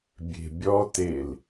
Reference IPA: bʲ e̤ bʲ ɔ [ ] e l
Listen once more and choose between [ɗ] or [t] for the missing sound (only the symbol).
t